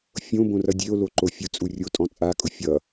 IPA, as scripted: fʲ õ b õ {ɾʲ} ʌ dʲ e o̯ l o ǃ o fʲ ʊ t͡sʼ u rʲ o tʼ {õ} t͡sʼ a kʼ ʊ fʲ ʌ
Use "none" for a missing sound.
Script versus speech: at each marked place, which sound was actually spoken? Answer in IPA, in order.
r, ɔ̃

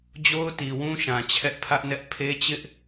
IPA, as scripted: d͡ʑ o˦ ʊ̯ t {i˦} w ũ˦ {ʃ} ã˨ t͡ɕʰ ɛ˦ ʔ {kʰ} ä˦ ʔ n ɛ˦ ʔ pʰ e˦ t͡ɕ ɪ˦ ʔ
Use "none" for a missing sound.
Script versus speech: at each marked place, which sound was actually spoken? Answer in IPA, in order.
i˨, ʃ, pʰ

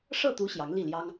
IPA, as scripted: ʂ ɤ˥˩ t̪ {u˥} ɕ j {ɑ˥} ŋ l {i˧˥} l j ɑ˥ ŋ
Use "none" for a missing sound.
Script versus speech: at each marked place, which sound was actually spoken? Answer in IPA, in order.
u˧˥, ɑ˧˥, i˥˩

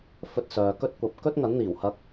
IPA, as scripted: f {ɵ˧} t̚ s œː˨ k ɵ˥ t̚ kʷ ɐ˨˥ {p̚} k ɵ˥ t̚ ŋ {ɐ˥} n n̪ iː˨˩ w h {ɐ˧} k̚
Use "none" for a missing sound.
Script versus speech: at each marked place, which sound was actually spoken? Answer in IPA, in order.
ɵ˧, p̚, ɐ˨˥, ɐ˧

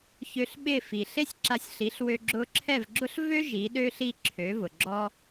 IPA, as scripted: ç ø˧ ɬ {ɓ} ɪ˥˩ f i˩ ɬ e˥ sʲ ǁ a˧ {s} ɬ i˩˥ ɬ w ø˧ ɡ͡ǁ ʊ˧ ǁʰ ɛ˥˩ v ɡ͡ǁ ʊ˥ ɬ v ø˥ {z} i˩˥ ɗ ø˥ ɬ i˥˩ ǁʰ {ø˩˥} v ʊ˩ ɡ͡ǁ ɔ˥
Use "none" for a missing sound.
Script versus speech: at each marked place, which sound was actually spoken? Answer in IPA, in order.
ɓ, sʲ, ʒ, ø˩˥

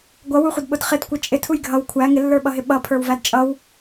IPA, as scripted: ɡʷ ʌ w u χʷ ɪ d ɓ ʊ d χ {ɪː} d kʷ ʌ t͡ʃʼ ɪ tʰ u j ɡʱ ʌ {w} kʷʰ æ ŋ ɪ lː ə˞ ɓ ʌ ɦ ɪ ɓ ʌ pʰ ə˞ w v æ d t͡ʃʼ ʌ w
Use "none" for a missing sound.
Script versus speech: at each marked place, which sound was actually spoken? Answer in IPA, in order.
ɪ, w

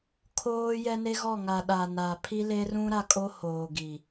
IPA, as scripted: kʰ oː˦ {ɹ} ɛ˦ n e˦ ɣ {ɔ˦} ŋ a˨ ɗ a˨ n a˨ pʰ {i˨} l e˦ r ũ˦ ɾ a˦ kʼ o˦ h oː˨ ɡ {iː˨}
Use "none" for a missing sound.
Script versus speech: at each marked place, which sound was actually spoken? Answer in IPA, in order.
j, ɔ˦˨, i˦, i˨

